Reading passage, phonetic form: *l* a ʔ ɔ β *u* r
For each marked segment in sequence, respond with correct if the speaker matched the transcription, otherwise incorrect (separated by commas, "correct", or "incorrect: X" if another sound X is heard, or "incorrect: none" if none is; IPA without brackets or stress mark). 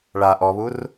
incorrect: ɭ, correct